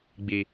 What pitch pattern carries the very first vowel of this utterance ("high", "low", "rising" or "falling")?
low